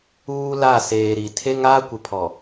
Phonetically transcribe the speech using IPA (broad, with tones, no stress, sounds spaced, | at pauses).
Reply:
uː˦ l a˦˨ s eː˨ ɾ i˨ tʰ e˦ ŋ aː˦ kʷ ɪ˨ pʰ ɔ˨